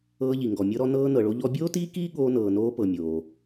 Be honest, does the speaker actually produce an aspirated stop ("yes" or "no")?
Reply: no